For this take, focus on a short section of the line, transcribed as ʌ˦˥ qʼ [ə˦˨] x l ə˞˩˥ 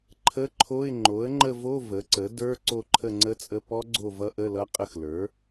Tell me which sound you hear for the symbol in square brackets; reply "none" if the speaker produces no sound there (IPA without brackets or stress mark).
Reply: ə˦˨